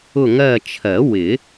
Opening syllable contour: falling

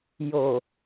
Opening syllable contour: low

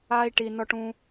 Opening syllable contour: high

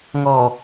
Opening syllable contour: low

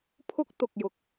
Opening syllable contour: high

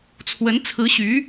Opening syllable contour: rising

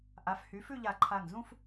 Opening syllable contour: rising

